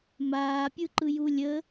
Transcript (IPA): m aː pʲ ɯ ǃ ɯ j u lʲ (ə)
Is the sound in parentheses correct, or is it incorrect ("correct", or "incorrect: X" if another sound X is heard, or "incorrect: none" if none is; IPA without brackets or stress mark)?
correct